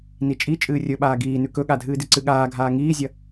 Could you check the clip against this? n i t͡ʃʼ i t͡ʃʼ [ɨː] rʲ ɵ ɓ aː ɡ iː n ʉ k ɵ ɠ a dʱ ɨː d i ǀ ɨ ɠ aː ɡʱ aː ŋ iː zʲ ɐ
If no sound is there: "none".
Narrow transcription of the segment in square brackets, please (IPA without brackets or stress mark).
ɨː